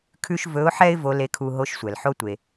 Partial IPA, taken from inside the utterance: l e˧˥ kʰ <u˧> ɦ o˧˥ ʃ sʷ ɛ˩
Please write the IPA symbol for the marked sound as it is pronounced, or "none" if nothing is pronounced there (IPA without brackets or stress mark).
u˧